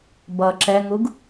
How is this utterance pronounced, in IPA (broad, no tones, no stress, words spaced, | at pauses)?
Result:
bʌ ǁɛŋuɡ